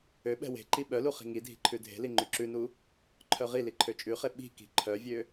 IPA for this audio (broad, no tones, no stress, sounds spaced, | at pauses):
ø ɓ ɛ̤ w e̤ ǃ i ɓ œ l u χ i̤ ŋ i dʱ i̤ ǃʰ ʉ dʱ e̤ l i ŋ͡ǃ y ǁ ʉ n u | ǃʰ œ ʁ i l i ǃʰ ø t͡ʃʼ ʉ χ e ɓ i̤ k i̤ ǃʰ œ vʲ ø